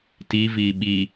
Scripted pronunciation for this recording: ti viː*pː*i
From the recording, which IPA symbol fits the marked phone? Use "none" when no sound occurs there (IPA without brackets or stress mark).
ɓ